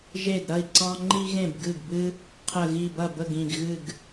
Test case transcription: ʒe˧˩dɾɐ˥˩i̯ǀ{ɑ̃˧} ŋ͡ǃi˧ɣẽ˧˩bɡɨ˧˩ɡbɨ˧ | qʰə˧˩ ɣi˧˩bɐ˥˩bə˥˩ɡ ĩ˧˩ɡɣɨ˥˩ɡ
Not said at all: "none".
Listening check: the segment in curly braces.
ɑ̃˧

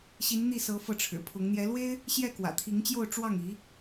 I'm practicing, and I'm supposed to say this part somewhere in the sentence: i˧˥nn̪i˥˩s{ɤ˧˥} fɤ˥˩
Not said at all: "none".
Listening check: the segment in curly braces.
ɤ˧˥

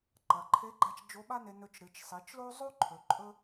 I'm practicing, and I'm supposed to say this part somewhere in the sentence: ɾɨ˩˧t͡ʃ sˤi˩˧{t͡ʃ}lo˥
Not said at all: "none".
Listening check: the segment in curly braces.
t͡ʃ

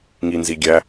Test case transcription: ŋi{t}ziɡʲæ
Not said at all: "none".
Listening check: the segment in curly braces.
n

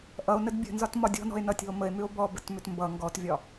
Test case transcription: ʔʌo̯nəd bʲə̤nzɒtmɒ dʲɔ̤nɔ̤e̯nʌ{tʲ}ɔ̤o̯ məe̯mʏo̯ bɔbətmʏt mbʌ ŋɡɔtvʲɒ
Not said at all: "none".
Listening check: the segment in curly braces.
tʲ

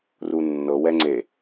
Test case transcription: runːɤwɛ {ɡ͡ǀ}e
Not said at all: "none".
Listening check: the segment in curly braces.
ŋ͡ǀ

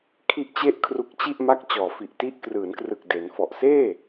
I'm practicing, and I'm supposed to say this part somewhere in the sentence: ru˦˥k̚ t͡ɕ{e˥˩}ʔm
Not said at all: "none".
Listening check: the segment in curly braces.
i˥˩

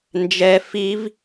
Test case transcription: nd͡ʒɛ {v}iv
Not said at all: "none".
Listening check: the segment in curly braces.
f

